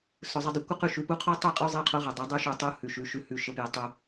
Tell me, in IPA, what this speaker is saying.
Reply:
s ʊ˨ zˤ ʊ˧ dˤ ʊ˨ kʷ ə˦ q ʉ˦ ʃ ʉ˨˦ p u˦ qʰ o˦ tˤ ɛ˦˨ qʼ ʉ˧ zˤ ɛ˧ qʰ o˦ ʁ ɛ˨ dˤ ə˨˦ dˤ u˧ ʃ u˨ tˤ u˦ h ʉ˨ ʃ ʉ˨ ʃ ʉ˧ h ʉ˧ ʃ ə˧ p j ɛ˧ tˤ u˧

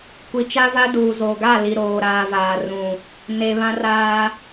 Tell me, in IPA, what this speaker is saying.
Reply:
kʷ i˨ t͡ʃ a˦ v a˦ d uː˨ z o˨ ɡ a˦˨ l i˨ ɾ oː˨ ɾ aː˨ v aː˨ r ũ˨ | n e˨ β ã˦ r aː˦

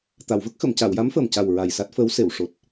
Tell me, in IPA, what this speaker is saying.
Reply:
t̪ a˨˩˨ w v ə˦˥ k̚ x ə˨˩˨ m c a˨˩˨ w j a˧˥ m f əː˨˩ m c a˨˩ w ɹ a˨˩ j s a˦˥ t̚ f əː˧˥ w s e˨˩˨ w ʂ o˨˩ t̚

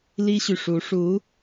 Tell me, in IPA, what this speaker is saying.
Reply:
l i˥ ɕ y˨ ʂ u˧˥ ʂ u˧˥

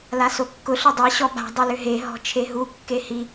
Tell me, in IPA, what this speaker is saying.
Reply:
l a s o kː ʊ ɬ ʏ dˤ i ɕ ɔ ɓ a̤ dˤ o l ʏ ɦ e ɦ ɔ̤ t͡ʃʰ e ɦ u kː e h i

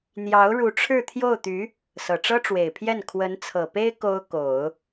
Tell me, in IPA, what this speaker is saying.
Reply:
n̪ j ɑ˧˥ ʊ̯ ɻ u˧˥ ʈ͡ʂʰ ɻ̩˥˧ t̪ʰ j o˥˩ ʊ̯ t̪ y˧˥ | s ɤ˨˩ ʈ͡ʂ ɤ˥ ʈ͡ʂ w e˨˩ ɪ̯ pʰ j ɛ˥˩ n kʰ w ə˧˥ n t͡sʰ ɤ˨˩ p e˥ ɪ̯ k o˥ ʊ̯ k o˨˩˦ ʊ̯

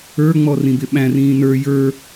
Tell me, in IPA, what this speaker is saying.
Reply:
ə˞ ŋ͡m ɔ r ĩ b ɪ ɓ æ̃ r ĩː n ə˞ j ə˞

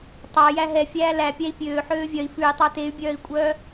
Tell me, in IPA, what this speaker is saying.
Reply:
tˤ ɑ j æ ɦ ɛ fʲ æː l æ pʲ æ i̯ pʲ øː ħ øː vʲ œ i̯ f ʉ i̯ tˤ ɑ t e y̯ bʲ œː i̯ kʷʼ œː

